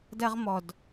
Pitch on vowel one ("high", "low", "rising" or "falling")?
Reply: high